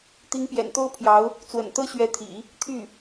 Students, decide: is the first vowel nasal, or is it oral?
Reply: oral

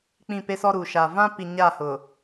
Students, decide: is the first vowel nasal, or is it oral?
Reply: nasal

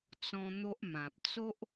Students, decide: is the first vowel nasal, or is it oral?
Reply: nasal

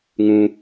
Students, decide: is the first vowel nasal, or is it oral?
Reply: nasal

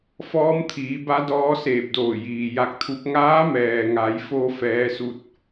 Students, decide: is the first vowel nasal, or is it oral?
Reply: oral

